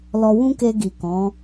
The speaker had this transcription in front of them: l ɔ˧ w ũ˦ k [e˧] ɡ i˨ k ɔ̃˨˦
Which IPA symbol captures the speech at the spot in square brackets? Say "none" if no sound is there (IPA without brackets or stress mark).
e˧